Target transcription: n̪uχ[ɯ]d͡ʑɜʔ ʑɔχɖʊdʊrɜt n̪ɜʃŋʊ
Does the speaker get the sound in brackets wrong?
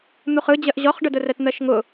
no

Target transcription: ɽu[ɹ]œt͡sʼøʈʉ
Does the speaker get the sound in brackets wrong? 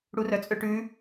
yes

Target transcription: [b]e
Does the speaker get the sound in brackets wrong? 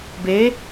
no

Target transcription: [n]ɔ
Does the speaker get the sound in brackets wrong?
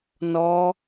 no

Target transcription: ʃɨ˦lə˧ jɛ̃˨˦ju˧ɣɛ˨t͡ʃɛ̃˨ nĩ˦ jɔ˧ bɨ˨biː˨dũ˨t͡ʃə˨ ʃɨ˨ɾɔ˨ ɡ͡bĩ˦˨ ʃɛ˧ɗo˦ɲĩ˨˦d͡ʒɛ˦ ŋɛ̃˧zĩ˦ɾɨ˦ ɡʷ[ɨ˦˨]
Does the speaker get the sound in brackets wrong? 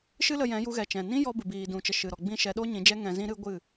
no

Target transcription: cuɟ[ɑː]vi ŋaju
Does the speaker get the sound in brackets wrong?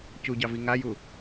yes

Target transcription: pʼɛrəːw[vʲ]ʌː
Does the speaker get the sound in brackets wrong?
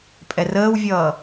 no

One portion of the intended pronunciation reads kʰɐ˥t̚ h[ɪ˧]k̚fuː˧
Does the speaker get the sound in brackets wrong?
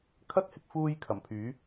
no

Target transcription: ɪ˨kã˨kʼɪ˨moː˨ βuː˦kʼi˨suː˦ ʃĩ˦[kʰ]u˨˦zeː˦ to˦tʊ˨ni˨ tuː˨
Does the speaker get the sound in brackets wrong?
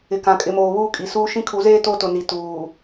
no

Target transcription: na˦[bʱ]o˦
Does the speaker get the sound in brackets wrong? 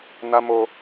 yes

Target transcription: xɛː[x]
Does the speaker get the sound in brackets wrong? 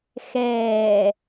yes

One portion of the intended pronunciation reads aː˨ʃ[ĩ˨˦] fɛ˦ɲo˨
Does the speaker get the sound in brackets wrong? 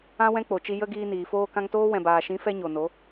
no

